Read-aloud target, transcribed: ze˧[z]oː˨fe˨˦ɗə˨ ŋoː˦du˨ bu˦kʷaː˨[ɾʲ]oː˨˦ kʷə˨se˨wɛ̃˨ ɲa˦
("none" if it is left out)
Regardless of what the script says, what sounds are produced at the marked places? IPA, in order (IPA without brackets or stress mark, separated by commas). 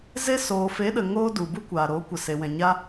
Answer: s, ɾ